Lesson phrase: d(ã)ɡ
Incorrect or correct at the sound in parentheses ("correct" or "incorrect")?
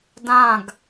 correct